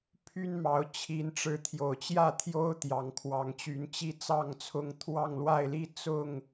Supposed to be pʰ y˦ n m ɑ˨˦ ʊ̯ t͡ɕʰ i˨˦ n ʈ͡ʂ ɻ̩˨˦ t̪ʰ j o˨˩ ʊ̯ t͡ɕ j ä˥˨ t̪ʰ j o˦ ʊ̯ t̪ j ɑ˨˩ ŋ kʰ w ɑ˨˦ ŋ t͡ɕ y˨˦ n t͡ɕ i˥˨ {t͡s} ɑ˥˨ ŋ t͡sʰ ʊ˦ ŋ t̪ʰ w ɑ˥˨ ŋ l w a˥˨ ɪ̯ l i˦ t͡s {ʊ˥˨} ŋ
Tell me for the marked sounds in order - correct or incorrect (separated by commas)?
correct, correct